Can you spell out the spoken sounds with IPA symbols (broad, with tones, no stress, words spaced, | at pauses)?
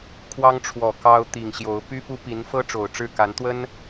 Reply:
kʰwɑ˥ŋʈ͡ʂʰwɔ˨˩ kɑ˥ʊ̯ t̪i˨˩ŋ ɕjo˧˥ʊ̯ py˥pu˥pi˧˥n fɤ˥ ʈ͡ʂo˨˩ʊ̯ʈ͡ʂɻ̩˥˩ka˧˥nt̪wə˥n